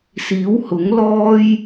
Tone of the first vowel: rising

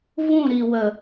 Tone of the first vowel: falling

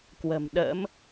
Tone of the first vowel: low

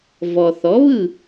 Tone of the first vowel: low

